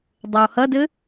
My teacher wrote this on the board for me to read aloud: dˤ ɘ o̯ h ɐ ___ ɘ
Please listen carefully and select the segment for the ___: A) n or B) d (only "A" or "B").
B